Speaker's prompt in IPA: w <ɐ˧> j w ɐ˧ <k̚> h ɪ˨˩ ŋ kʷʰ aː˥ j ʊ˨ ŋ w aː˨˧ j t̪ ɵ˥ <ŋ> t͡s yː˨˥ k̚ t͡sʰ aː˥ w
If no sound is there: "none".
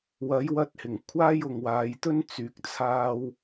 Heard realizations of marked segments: ɐ˨˥, t̚, n

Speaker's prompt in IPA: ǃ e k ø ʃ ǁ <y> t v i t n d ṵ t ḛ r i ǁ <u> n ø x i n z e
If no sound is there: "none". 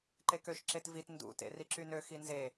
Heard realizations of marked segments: e, y

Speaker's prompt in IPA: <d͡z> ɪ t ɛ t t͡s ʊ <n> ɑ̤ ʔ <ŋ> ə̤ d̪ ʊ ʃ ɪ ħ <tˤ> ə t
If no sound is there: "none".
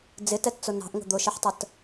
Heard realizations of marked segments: d͡z, n, ŋ, tˤ

